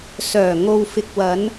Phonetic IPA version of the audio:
s œː˨˩ ŋ o˨ w f ɪ˨ k̚ w ɐ˨˧ n

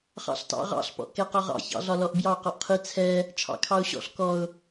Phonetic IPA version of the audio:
χ ɑ̰ ɬ t ɑ̰ ʁ ɑ̰ ɬ p ɔ̰ ʔ k ɛ q ɒ ʁ ɑ̰ ç ɑ̰ ɮ ɒ l ɔ ʔ b j ɑ q ɔ ʔ qʰ i t͡sʰ ɛ | t͡ʃʰ ɑ̰ kʰ ɑ ʊ̯ ɕ ɔ̰ ɬ k ɔ ʊ̯

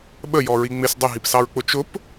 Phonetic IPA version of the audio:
ɓ ə j ɔ ɹ i ŋ͡m ɪ s dˤ ə ɦ i p s ɑ ɹ k͡p ʊ t͡ʃ ʊ p

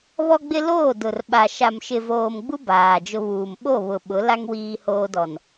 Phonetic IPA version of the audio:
β ɔ˦ ɡ͡b ɪ˦ l oː˦˨ d ʊ˨ r ɓ a˨ ʃ a˨ m ʃ ɪ˨ v oː˨ m ɡ͡b u˦ b aː˨ d͡ʒ ʊ˦ β uː˨ m ɓ o˦˨ β ʊ˨ ɓ ʊ˨˦ l a˦ ŋ w iː˦ h oː˦ d ɔ˨ n

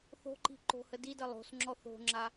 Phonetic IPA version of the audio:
θ o̤ ǃ i̤ ǃ o̤ h ə d i d ə lˠ o̤ s ŋ͡ǁ ɔ θ o̤ ŋ͡ǁ a

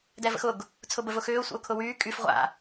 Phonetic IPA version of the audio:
d ɛ v ə̰ x ʊ ɡ | t͡sʰ ʊ b ə v ʊ x ʏː ʊ̯ sʷ ə̰ ʊ̯ kʰ ʊ w yː kʼ y f ʁʷ a̰

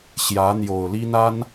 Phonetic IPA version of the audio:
ɕ j ä˧˥ n̪ j o˨˩ ʊ̯ l i˥ n̪ a˥ n

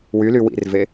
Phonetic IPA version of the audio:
w y l y w ḭ r v e

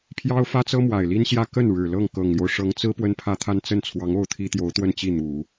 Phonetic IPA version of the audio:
pʰ j ɑ˥ ʊ̯ f ä˥ t͡s ɤ˥ m w a˨˩ ɪ̯ l i˥ n ɕ j ä˥˧ k ə˥˩ n ɻ ɻ̩˨˩ l ɤ˥˩ ŋ k ɤ˨˩ ŋ l j o˦ ʊ̯ ʂ ɤ˧˥ ŋ t͡s ɹ̩˥ p w ə˥ n pʰ ä˥˧ t̪ʰ a˥˧ n t͡s ə˥˩ n t͡sʰ w ɑ˧˥ ŋ o˥˩ ʊ̯ t̪ʰ i˥ t̪ j o˧˥ ʊ̯ t̪ w ə˥˧ n t͡ɕ i˥˩ n̪ u˨˩˦

